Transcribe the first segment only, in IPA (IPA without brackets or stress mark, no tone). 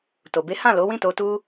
t